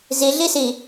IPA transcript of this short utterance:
z i ɮ i s i

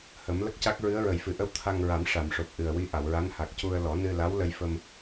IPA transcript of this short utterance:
h ə˨˩˦ m l ə˦˥ k̚ c a˦˥ k̚ ɹ ɨ˧˥ ə̯ ɹ ə˨˩ j f ɨ˨˩ ʔ ə˧ w t̪ʰ a˧ ŋ ɹ a˨˩˦ m ʂ a˨˩˨ m ʂ o˨˩ p̚ ʔ ɨ˨˩ ə̯ w i˧˥ ʔ a˨˩˨ w ɹ a˧˥ n h a˨˩ k̚ c u˧ ə̯ l ɔ˨˩˦ n ɨ˧ l a˧˥ w l ə˧ j f ə˧ m

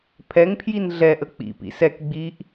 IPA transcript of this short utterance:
pʰ ɛ ŋ pʰ j i n ɮ ɛ ʔ ə k͡p ḭ p ḭ s ɛ k ɡ͡b i ʔ

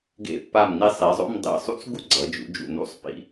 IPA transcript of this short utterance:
ɡ ḛ˧˩ pː a˧˩ m n i˧ sˤ i˩˧ zˤ o̰˥˧ m dˤ ḭ˧˩ sˤ ṵ˥ t͡s ɡ u˥ ɡ͡ǀ ʌ˩˧ d͡ʒ ṵ˩˧ d͡ʒ ṵ˧˩ n ṵ˥˧ sˤ p ḭ˧

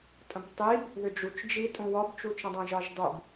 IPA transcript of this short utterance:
tʼ ə̃ b tˤ i b | ð ʏ d͡ʒ u t͡ʃ d͡ʒ i tʼ ũ w ɒ b t͡ʃ u t͡ʃ ə̃ dˤ ə̃ ʒ ɒ ʒ dˤ u b

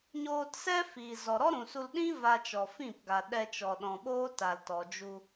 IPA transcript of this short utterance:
ɲ oː˧ t s ɛ˦ f iː˨ z ɔ˨ ɾ ɔ˦ ɾ ũ˨ s u˧ l ɗ ĩ˦ v a˧ t͡ʃ ɔ˨ f ĩ˦˨ p ɡ a˨ ɗ ɛ˧ t͡ʃ ɔ˨ ɗ ɔ̃˨ ɓ oː˦ t a˨ l t ɔ˨ d͡ʒ u˧

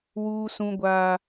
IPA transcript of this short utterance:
w uː˦ s ũ˦ ɡʷ aː˦

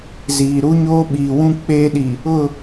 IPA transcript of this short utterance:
z iː˨ ɾ u˦ ɲ oː˦ ɓ iː˨ w ũ˦ k͡p eː˦ ɗ i˨ | ʊ˦˨

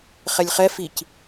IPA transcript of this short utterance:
χ ɛ lʲ χ ɛ f i c

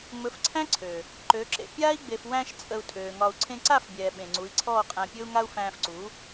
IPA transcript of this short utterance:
ŋ͡m ɵ˨˦ f ǀʰ æ̃˦ ǀʰ ø˨ | ǃ ø˨˦ ǁ ḛ˧ pʲ aː˦ i̯ ɡ͡b e˨ f w æ̃˧ ʃ t͡sʼ ə˧ u̯ tʼ øː˨ ŋ ɒ˧ u̯ ǀʰ ẽ˧ ǀ a˦˨ f bʲ ɛː˨ ɓ ẽ˨ ŋ͡ǀ u˨˦ i̯ ǀʰ ɔː˦˨ qʼ æ̃˧ pʲ ɵ˦ u̯ ŋ a˦ u̯ f æ̃ː˧ f ǀ u˨˦

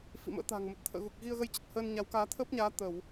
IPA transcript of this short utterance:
f ḭ˧˨ m ə̰ː˧˥ t̪ a̤ː˨˩ ŋ m ə˨˩ t̚ t̪ʰ ə̰ː˧˨ ɣ u˨˩ k̚ ɣ i˧ ə̯ ɣ ə˧ j t͡ɕ ə˨˩ t̚ h əː˧ n ɲ a˨˦ w k aː˨˦ t̪ʰ əː˦˥ p̚ ɲ aː˨˦ t̪ ə˧˩˨ w

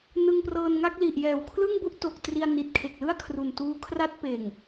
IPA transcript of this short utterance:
n ɯ˧ ŋ p r ɤː˧ n ŋ a˥˩ k̚ l i˨˩ ʔ j ɛː˨˩ w kʰ l ɯ˥˩ ŋ b u˥˩ ʔ t o˨˩ k̚ t r i˧ a̯ n i˨˩ t̚ kʰ e˨˩ k̚ l ɯ˥˩ a̯ kʰ r u˨˩ n t uː˦˥ kʰ r a˥˩ t̚ p eː˨˩ ŋ

